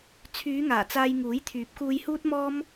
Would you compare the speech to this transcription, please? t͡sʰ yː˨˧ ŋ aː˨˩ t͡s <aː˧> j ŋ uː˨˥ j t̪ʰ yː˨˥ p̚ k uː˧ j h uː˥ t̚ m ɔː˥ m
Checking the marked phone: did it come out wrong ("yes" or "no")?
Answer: no